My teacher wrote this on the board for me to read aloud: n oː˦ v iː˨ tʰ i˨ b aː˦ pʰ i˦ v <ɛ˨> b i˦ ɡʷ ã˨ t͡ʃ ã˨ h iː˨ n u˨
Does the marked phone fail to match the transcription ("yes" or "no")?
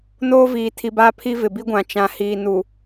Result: yes